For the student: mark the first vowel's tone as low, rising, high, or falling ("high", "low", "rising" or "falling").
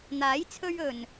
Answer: rising